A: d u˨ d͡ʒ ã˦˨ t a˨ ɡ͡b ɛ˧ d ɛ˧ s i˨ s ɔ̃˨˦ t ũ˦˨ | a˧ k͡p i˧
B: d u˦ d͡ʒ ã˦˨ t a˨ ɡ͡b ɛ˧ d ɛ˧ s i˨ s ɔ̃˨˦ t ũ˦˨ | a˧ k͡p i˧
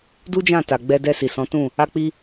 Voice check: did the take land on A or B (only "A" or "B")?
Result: B